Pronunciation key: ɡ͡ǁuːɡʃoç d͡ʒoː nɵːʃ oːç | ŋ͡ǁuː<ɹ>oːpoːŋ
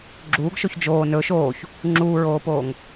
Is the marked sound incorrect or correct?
correct